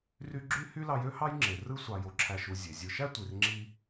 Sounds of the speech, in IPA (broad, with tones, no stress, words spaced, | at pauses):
ry˦ ɡ͡ǁy˥ hy˥ lɑ˦ jø˥hɑ˥jŋ͡ǁe˩ rɯ˥sʷɑ˨jo˨ǁʰæ˨ʃ u˨ zʲe˩zʲɯ˨ʃæ˥ tʷi˨rŋ͡ǁi˥